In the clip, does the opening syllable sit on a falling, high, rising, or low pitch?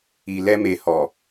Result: low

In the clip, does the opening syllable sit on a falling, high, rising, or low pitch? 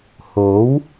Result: rising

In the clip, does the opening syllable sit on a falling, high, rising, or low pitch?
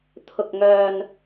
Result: low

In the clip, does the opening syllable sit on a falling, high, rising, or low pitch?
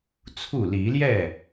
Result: falling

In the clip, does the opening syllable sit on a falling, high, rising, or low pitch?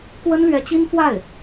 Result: high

